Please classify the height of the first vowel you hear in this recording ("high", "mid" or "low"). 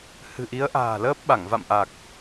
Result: high